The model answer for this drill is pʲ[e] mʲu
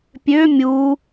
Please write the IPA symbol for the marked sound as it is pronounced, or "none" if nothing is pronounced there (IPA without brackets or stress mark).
ø